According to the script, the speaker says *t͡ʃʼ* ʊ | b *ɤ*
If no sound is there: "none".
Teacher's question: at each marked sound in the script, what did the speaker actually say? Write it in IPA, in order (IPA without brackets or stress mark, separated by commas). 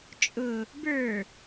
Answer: t͡ʃʼ, ə˞